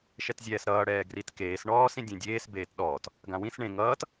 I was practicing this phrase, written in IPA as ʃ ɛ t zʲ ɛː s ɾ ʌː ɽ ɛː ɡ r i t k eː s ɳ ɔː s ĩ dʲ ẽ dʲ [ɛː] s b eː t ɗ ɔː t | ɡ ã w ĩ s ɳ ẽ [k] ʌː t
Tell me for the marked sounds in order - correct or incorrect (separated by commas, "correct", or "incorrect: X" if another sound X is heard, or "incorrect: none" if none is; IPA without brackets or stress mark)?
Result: incorrect: eː, incorrect: ŋ